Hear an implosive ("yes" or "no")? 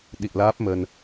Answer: yes